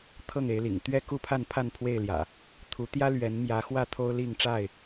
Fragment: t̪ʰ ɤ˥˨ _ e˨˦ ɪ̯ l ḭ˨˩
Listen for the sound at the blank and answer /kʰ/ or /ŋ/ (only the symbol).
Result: ŋ